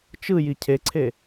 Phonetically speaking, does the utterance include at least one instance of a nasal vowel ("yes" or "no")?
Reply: no